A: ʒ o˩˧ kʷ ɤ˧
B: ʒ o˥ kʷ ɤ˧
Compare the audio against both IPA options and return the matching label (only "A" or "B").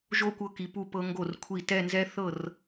B